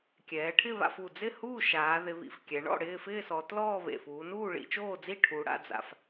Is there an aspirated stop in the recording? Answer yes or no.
yes